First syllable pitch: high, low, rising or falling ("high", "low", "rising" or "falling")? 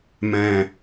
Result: low